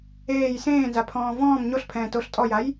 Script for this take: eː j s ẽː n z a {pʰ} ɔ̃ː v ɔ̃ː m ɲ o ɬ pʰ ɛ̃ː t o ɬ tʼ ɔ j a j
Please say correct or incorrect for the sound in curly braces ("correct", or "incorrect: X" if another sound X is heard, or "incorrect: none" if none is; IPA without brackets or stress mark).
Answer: correct